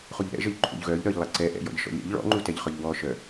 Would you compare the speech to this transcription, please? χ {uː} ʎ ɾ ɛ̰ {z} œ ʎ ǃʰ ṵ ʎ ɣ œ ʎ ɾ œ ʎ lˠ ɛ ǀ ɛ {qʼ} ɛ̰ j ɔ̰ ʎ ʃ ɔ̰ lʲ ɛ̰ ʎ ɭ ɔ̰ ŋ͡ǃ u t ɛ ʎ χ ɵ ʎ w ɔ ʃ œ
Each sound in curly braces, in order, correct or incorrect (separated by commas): incorrect, incorrect, incorrect